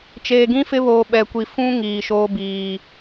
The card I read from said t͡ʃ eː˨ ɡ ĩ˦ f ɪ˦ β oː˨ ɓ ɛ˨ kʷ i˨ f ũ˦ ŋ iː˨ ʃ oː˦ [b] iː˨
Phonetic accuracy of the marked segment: correct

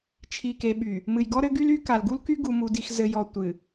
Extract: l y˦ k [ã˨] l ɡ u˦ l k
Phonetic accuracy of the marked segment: incorrect: a˨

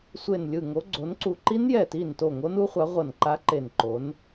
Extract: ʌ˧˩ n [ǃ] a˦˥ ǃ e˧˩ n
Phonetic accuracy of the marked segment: correct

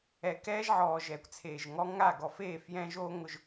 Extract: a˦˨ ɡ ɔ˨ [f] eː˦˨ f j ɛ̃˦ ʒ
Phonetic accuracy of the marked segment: correct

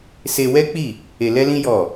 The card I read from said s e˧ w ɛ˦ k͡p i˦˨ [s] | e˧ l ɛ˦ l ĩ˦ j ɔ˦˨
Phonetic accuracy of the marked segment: incorrect: none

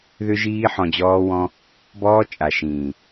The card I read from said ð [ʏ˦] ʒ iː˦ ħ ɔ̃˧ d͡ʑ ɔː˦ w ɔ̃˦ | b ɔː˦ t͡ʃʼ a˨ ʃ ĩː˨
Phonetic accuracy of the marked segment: correct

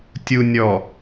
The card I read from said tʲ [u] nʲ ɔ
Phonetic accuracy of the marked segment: correct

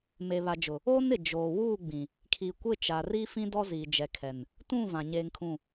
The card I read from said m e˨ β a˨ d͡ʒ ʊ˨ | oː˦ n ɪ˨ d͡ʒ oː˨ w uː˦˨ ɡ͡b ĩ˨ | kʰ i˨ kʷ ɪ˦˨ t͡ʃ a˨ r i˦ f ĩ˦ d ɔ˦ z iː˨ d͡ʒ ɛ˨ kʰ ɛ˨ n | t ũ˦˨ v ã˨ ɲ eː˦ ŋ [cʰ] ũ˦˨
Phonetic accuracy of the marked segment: incorrect: kʰ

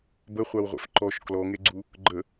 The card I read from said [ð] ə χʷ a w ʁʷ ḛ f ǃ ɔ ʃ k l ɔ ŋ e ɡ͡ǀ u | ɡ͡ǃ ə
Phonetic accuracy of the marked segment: incorrect: b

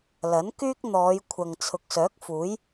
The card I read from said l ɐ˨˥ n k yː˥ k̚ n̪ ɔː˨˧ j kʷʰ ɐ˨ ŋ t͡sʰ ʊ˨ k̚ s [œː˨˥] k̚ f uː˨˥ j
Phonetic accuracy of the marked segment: correct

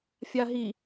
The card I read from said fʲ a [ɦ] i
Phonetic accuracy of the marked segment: correct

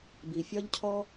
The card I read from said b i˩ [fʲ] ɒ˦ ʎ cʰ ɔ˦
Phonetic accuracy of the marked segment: correct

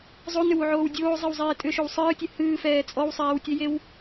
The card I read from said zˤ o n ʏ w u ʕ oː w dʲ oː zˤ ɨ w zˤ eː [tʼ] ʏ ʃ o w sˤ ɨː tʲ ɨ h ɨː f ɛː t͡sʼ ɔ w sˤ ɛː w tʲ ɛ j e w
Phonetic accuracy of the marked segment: correct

